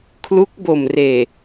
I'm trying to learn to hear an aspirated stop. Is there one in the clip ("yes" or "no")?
yes